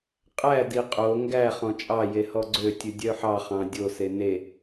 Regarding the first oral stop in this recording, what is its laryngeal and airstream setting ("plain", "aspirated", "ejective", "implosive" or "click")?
ejective